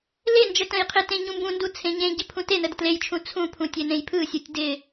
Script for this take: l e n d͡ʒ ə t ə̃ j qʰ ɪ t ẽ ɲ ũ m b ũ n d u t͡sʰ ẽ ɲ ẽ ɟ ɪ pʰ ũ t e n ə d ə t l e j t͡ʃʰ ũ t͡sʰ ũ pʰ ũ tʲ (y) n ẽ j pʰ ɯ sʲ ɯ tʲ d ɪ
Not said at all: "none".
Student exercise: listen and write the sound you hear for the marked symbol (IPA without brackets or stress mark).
e